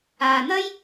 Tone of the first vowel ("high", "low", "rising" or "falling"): low